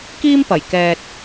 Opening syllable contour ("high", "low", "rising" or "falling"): high